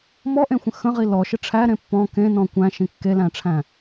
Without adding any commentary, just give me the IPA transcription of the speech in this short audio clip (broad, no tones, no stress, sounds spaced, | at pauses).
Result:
m ɔ ʔ ẽ xʷ ə̃ x ə̃ ʁ i l ɔ ʃ ə ʈ͡ʂʰ æ ɾ ẽ pː ɔ̃ k ẽ n ɔ̃ kʷ æ̃ ʃ ĩ kː e l æ̃ ʈ͡ʂʰ æ̃